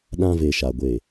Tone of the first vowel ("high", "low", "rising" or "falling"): high